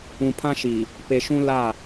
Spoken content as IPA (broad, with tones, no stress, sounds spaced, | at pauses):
ũ˨ pʰ ã˦ ʃ i˨ | p e˨ ʃ ũ˦ l a˦˨